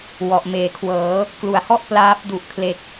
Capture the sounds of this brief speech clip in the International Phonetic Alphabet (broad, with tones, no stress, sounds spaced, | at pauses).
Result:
w ɔ˨˩ ʔ m eː˩˦ kʰ w ɤː˩˦ | k l u˨˩ a̯ h ɔ˥˩ ʔ p l aː˦˥ p̚ d u˨˩ ʔ kʰ l e˨˩ k̚